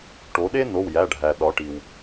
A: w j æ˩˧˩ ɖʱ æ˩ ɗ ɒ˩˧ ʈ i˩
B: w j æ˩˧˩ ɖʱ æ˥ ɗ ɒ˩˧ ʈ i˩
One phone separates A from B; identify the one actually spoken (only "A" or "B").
A